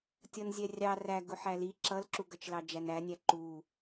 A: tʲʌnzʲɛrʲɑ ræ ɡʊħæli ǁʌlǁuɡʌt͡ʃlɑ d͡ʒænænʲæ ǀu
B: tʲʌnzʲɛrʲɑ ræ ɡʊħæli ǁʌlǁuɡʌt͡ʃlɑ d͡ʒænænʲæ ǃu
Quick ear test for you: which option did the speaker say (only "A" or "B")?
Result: B